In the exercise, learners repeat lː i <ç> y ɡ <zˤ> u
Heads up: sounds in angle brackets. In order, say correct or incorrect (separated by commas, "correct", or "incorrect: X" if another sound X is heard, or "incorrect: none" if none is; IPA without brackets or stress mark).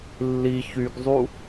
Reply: correct, correct